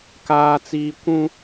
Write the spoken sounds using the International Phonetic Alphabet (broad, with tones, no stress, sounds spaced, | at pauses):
k aː˦ t͡s iː˦ kʷ ũ˦